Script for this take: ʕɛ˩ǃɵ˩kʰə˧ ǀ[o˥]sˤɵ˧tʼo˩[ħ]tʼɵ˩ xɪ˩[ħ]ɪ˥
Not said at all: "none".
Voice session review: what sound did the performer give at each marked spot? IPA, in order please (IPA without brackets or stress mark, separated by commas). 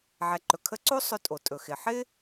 o˥, none, ħ